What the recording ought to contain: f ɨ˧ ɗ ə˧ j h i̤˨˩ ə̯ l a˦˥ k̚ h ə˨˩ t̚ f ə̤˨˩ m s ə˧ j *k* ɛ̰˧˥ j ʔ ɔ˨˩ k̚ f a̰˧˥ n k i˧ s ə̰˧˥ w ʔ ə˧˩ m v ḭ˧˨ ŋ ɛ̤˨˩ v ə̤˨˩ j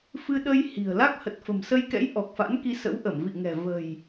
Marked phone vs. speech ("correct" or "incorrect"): correct